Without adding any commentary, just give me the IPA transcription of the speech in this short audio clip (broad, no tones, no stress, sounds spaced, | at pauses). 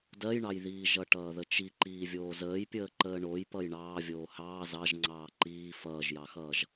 d ɜ j ɳ ɑ j ð iː ʒ ʌ ʈ ʌː ð ə t͡ʃ i ǃ iː vʲ oː z əː j pʲ əː ǃ əː ɳ o j p ʌ j ɳ ɑː vʲ oː h ɑː z ɑ ʒ ŋ͡ǀ ɑː ǃ iː f ʌː ʒ j ɑ x ʌː ʒ